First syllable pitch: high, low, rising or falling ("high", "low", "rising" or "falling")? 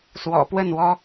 low